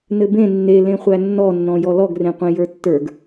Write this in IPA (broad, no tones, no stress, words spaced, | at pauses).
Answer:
nɘbẽ nːe lẽχʷænːɔnːɔ̃ jɔlɔɡrẽqʷẽ jə˞tːə˞ɡ